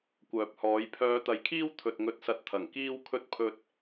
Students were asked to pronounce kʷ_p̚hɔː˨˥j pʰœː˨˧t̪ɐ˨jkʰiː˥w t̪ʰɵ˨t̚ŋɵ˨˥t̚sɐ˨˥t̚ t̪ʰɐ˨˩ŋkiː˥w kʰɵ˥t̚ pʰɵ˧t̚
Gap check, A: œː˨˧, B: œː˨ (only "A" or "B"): B